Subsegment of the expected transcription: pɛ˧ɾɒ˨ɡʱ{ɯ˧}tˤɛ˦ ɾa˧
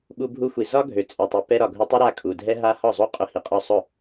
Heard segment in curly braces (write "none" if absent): ʊ˧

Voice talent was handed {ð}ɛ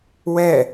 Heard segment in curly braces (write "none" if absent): w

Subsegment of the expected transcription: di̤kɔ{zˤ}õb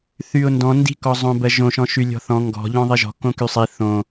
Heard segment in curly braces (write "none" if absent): zˤ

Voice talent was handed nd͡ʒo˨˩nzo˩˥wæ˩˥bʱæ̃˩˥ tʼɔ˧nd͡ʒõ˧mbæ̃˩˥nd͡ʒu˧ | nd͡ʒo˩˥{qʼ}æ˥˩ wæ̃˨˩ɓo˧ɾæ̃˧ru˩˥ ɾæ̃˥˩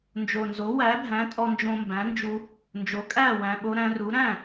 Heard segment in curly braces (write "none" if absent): kʼ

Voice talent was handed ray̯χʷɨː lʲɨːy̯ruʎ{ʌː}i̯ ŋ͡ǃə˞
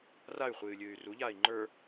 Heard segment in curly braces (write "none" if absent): aː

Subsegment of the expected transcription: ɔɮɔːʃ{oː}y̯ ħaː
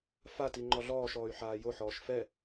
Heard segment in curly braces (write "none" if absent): ɔː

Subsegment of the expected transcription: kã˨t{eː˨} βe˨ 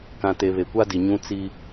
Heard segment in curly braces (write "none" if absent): e˨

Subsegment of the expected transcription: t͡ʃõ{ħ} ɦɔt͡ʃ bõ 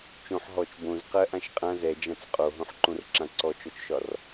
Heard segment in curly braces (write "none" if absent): ħ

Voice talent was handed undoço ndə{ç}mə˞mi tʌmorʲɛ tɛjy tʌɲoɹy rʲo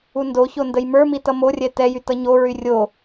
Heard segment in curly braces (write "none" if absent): j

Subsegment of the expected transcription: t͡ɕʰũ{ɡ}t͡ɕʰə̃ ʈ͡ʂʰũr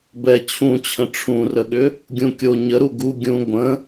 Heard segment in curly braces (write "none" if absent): none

